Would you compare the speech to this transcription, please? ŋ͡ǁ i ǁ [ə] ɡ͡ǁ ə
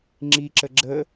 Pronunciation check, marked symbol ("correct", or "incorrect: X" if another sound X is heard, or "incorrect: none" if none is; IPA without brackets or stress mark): correct